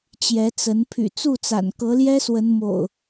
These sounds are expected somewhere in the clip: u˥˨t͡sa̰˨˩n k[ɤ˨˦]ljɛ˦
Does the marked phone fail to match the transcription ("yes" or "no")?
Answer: no